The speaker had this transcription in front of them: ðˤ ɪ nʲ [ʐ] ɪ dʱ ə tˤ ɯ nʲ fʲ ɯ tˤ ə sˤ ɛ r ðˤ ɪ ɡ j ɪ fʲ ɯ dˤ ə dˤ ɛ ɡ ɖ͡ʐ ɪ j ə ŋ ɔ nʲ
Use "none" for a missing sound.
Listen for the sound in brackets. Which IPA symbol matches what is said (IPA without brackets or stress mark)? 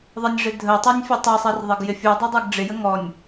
ʐ